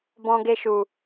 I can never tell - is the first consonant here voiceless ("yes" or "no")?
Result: no